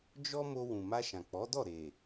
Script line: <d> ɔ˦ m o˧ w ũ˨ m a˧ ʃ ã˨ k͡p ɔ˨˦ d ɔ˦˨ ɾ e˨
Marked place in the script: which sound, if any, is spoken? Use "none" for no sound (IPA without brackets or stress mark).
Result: d͡ʒ